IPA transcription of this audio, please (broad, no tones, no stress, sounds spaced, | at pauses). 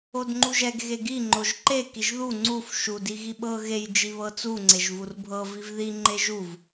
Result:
o d ŋ͡ǃ u ʒ ɛ ɡ ɣ e ɡ i ŋ͡ǃ o ʒ ǃ e k i ʒ ð u ŋ͡ǀ u f ʃ u d i ɣ i ɓ ɤ ɣ e j d͡ʒ i β ɤ t͡s u ŋ͡ǀ e ʒ v u r bʱ ɤ v i v ð i ŋ͡ǃ e ʒ u v